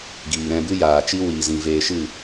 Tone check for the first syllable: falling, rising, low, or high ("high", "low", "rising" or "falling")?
low